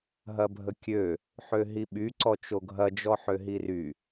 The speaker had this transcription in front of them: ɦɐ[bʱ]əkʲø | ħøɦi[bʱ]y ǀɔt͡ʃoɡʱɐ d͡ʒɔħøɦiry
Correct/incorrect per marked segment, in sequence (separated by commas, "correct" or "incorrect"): correct, incorrect